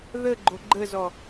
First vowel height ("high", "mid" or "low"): mid